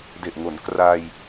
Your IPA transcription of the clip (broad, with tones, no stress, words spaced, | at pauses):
de˨˩ʔŋo˩˦nkraː˧j